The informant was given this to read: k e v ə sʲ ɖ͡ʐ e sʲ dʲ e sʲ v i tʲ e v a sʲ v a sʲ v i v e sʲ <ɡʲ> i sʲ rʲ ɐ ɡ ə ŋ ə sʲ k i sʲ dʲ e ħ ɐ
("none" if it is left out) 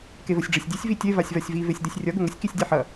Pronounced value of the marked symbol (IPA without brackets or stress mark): d